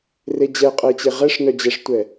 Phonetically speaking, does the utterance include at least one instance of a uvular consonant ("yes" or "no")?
yes